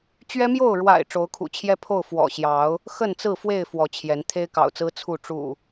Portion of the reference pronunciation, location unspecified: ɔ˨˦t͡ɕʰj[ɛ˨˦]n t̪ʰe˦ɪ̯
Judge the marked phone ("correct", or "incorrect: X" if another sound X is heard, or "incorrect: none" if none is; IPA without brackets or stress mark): correct